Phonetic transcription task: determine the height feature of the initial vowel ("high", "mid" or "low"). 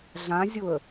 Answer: low